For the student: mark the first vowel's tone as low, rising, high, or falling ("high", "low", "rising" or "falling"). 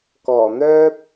low